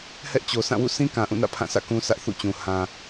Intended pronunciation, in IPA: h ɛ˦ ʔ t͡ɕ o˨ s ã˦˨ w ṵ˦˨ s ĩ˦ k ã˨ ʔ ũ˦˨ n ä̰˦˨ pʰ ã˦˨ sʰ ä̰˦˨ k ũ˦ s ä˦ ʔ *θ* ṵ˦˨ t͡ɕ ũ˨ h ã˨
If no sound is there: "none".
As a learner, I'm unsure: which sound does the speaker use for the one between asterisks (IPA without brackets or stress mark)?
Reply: θ